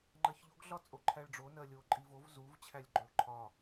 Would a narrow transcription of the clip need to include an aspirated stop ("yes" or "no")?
yes